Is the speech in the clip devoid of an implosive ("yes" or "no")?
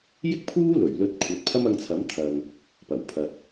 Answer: yes